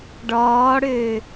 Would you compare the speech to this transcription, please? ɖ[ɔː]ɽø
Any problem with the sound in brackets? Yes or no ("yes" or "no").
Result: no